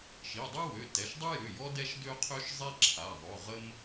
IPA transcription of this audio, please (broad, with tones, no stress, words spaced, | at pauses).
ʃi˩˧˩dˤu˥wø˩˧˩ tɛ˩˧˩ʃdˤu˥jø˩˧˩jɔ˥ dɛ˥ʃdø˥qʰø˥ʃ zˤi˥ǁʰa˩˧˩ ðˤø˩˧˩ʁə˥m